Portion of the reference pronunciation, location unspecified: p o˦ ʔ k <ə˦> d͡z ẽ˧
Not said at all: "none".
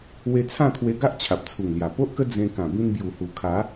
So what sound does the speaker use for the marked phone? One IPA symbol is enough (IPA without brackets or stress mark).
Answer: ə˦